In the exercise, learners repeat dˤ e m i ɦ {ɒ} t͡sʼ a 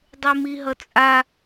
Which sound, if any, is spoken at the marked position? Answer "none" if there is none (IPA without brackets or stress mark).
ʌ